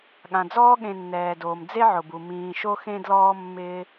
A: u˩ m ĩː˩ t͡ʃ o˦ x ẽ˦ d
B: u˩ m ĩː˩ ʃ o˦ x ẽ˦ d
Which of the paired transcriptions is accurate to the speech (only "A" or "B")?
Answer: B